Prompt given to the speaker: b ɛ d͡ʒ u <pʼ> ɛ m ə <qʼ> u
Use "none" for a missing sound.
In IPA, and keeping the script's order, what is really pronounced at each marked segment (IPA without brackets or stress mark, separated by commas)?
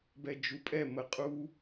pʼ, qʼ